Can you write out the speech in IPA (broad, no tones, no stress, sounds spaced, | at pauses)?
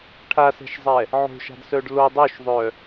ʈʰ a s ɛ̤ ʃ zˤ ɛ | ʕ o̤ ʃ a̤ d s œ ɖ l o dˤ o ʃ ðˤ œ